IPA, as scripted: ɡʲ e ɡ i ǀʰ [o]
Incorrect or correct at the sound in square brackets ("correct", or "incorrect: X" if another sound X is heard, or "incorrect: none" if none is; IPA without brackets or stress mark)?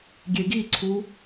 incorrect: u